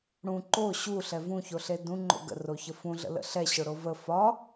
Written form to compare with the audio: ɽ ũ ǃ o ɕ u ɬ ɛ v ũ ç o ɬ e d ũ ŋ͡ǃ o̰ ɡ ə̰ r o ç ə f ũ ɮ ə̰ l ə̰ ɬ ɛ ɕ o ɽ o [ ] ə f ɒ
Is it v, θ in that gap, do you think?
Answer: v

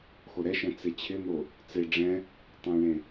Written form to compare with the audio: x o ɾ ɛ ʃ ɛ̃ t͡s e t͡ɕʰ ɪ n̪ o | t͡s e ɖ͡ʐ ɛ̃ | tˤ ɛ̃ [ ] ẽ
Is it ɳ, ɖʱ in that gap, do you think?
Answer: ɳ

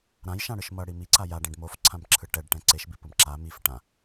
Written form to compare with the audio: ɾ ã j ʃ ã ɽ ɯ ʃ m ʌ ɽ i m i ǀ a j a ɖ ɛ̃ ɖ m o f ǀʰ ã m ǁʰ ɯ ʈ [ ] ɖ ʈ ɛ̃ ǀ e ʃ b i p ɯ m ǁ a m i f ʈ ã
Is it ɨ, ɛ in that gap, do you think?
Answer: ɛ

